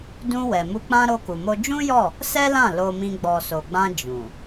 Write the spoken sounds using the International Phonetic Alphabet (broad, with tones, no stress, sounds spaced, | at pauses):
d ũ˧ w ɛ˨ m u˧ k͡p ã˦ ɾ o˧ k u˨ m o˧ d͡ʒ ũ˦ j ɔ˦˨ | s ɛ˦ l ã˦˨ l o˧ m ĩ˧ ɡ͡b ɔ˨ s o˨ ɡ͡b ã˧ d͡ʒ ũ˨